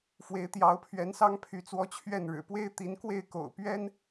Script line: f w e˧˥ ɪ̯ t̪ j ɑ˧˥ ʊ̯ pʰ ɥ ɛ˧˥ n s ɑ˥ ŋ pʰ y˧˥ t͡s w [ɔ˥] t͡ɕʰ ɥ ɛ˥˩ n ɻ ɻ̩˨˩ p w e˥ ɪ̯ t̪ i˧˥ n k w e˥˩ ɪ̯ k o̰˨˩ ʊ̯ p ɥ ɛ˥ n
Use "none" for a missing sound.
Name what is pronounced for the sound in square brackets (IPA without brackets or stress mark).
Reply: ɔ˥